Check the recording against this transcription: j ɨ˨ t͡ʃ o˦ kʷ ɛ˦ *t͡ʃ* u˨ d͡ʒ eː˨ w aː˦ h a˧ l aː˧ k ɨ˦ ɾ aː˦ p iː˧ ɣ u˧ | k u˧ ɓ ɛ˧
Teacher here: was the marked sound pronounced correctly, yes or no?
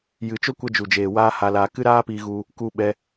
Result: no